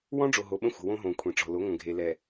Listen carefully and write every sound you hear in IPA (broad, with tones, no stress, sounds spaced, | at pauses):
w ɔ̃˦ ɖ͡ʐ o˨ ɦ o˨ ɓ ə̃˦ xʷ ə̤˨ w õ˦ ɦ õ˨ kʷʰ ĩ˨ ʈ͡ʂ ɔ̤˨ l o˨˦ ŋʷ ə̃˨ ɡʱ e˨ l ɛ˨